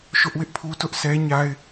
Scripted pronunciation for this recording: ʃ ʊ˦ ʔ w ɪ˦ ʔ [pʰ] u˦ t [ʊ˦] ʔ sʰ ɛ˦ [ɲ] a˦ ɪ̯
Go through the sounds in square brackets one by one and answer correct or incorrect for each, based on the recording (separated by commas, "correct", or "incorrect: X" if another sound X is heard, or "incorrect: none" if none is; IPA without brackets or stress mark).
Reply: correct, correct, correct